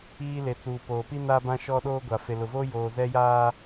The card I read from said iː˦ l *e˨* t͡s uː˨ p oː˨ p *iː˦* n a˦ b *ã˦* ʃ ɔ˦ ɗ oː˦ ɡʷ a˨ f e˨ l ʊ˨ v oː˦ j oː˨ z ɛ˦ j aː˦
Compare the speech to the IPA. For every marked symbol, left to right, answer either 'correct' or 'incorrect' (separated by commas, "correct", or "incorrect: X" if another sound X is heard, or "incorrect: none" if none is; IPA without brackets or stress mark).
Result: correct, incorrect: i˦, correct